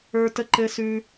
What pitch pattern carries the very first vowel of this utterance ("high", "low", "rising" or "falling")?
high